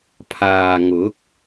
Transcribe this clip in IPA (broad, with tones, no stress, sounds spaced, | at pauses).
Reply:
pʰ aː˨ ŋ ʊ˨˥ k̚